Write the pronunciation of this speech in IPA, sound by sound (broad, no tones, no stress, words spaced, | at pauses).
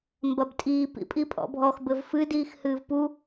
mbɐbtʼiːp ḭpʼipʼɔ̰bʱɔx bɘvfɨ diːxhɨːvpu